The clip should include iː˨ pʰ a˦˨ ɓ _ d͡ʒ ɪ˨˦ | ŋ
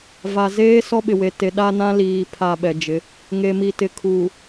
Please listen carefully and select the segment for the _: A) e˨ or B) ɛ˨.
B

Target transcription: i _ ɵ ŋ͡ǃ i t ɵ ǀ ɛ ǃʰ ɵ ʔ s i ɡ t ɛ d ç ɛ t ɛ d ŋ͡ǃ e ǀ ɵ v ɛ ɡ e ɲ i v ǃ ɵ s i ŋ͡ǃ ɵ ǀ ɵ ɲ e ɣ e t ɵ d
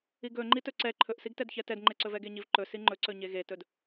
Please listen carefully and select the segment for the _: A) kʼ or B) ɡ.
B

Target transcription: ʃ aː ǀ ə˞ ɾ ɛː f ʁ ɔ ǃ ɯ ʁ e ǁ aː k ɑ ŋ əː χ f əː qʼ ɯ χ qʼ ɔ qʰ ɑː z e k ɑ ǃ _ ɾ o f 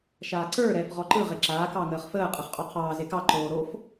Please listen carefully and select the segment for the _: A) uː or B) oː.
B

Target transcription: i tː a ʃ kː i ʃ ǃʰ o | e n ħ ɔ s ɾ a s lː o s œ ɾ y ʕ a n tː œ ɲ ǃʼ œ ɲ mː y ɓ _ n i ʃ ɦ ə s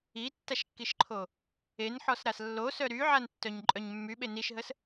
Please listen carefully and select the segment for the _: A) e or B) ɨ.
A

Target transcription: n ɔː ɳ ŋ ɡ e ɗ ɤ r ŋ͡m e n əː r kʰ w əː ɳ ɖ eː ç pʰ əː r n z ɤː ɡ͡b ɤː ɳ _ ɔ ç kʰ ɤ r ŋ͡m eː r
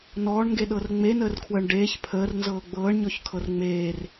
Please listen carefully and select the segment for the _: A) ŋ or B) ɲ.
B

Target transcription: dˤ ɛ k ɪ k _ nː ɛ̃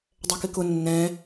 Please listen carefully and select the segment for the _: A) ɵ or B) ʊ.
B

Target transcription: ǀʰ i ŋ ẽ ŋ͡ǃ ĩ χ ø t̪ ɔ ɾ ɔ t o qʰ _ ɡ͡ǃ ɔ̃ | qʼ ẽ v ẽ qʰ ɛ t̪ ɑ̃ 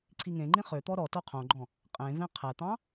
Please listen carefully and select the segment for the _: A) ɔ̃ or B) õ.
B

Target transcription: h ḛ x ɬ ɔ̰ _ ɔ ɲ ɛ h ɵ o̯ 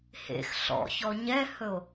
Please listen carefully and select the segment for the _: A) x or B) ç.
B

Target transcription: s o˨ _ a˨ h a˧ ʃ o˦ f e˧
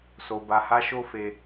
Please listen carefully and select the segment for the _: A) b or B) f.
A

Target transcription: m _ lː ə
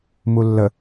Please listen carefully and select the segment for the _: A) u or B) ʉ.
A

